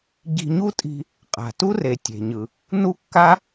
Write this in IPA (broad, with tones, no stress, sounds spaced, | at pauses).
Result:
ɟ i̤˧ ɲ u˥ tʼ i̤˧ | qʼ a̤˩ t u˥ r e˩ tʲ e̤˩ ɲ ɯ˩ | n u˥ kː a˥